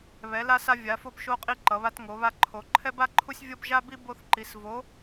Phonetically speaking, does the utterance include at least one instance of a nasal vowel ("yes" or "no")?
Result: no